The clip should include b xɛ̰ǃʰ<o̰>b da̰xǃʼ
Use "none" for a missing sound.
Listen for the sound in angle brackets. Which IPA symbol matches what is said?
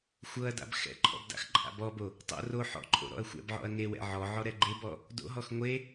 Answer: ɔ̰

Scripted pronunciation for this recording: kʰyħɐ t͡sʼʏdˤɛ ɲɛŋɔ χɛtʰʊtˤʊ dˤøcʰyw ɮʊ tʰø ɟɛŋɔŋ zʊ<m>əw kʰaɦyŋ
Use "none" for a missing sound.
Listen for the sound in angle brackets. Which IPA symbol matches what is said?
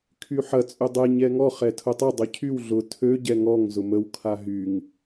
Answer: m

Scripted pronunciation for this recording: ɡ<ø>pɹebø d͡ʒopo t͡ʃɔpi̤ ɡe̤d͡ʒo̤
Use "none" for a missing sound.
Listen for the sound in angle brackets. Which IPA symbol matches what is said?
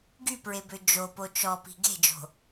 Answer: y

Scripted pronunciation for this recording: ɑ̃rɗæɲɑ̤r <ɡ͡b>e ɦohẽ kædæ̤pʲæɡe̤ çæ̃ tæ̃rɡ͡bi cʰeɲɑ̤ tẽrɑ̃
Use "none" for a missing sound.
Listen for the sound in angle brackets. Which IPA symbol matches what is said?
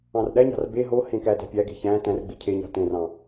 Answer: b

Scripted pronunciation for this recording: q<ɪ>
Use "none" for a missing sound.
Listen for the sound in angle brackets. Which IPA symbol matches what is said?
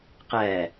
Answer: ɛ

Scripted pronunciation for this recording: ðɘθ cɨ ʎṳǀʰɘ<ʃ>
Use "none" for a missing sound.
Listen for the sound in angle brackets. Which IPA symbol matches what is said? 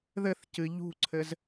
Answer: z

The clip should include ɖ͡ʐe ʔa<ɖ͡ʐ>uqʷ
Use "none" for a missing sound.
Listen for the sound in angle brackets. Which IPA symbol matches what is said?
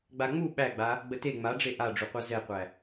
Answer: ɖ͡ʐ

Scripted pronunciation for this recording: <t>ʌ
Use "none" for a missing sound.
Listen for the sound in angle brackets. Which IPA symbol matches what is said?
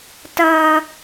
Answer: t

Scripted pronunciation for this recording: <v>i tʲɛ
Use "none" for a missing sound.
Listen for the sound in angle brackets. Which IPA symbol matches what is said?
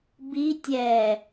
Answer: b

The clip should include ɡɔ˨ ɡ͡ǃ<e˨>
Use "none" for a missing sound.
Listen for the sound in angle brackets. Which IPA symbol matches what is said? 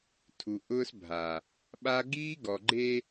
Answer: e˦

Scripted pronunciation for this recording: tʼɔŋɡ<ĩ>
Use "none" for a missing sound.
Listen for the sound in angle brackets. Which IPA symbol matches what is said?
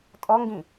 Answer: ĩ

